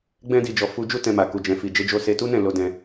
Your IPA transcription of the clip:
ɡ͡bɛ̃˧di˨d͡ʒɔ˨ fu˧d͡ʒu˦ tɛ̃˧ma˨ ku˨d͡ʒɛ̃˨fi˨ d͡ʒe˧d͡ʒo˧ se˧tu˦nɛ̃˦˨ lo˧dɛ̃˧

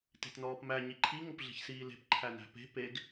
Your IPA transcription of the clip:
te̤tnɔːpmæ ɲiǃʰi ŋopɮe̤çsiːle̤p ǃʰænæ̤pe̤ peɡ

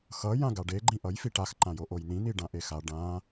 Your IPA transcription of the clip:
xʌ jãɡaɖe ɡ͡ǃĩʔʌj fiʈax ǃãjoʔojn̪ĩ n̪iɖãʔexa ɖã

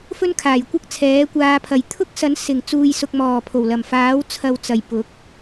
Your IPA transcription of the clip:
fɵ˥nkʰaː˨˩jkʷɐ˥k̚t͡sʰɛː˨˥ kʷaː˧pʰɐ˨j t̪ʰʊ˥k̚sɐ˨˥nsɪ˨˩ŋ t͡suː˨jsʊ˨k̚mɔː˨˩ pʰo˨˩wlɐ˨˩m faː˨˥wt͡sʰɐ˨wt͡sɐ˨˩j pʊ˨˥k̚

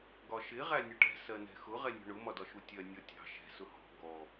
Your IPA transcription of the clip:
ɡɒʃɪ ʁænʲʊʈɛ̤ sɜnɛ̤xʊ ʁɛnʲɔ̤ɳʊ mɒdɒʃutʲɜ nʲɔtʲɑ̤ ʃɛ̤ sʊhɔ̤ ɡɔ

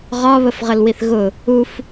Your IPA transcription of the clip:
ʁɒβəfʁəlwiθ ɣʊ | uf

